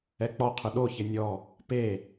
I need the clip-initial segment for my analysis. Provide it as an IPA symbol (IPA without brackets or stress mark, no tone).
ɛ